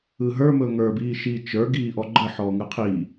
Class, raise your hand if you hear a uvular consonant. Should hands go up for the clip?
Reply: yes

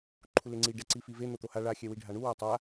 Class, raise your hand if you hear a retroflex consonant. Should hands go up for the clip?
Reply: yes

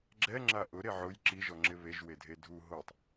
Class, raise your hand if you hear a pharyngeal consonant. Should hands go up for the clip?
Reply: yes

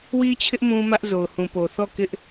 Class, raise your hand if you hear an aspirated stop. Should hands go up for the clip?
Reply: yes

